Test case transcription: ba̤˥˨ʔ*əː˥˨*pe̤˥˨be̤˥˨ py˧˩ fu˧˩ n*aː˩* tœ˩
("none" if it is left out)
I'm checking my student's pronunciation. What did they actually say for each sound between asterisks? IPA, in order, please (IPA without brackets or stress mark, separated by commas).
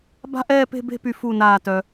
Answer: ɛː˥˨, aː˧˩